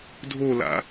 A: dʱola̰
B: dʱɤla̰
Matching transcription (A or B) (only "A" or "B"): A